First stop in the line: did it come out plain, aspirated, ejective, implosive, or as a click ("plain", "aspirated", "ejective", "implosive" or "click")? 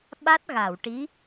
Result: implosive